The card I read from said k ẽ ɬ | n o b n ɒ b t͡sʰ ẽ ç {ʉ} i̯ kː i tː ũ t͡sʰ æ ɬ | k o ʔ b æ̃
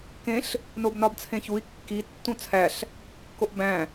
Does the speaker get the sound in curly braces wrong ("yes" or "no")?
yes